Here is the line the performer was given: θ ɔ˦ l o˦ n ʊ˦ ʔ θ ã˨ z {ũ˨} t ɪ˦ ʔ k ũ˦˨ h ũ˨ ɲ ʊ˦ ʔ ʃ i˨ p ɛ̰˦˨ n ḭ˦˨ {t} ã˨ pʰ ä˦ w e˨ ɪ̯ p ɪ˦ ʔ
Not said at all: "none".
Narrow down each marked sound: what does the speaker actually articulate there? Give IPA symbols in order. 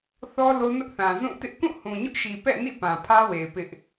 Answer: ũ˦˨, p

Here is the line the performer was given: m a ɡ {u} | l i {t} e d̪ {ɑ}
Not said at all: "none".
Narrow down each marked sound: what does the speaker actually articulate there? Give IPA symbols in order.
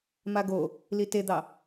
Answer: o, t, ɑ

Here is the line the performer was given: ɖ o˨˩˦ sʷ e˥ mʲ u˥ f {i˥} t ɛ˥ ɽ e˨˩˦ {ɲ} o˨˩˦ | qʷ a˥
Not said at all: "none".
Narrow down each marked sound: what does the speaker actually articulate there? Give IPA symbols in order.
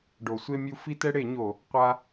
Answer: i˥, ɲ

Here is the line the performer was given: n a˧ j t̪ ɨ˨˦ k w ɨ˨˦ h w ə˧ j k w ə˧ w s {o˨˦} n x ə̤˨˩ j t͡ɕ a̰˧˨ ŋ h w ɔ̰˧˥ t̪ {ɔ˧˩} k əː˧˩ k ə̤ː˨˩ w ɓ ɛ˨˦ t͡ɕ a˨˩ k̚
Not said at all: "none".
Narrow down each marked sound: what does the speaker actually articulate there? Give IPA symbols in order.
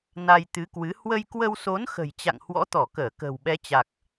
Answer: o˨˦, ɔ˧˩

